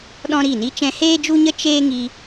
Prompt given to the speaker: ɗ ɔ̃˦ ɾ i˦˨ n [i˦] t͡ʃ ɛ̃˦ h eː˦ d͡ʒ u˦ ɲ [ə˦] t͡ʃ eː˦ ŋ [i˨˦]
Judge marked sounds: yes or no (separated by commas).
yes, yes, no